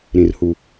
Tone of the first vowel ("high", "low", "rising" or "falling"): low